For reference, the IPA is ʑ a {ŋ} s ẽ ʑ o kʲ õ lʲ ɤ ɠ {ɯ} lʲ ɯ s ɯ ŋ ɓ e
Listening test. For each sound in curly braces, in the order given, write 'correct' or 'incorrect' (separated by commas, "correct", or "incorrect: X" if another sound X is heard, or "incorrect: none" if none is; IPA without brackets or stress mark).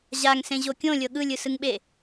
correct, correct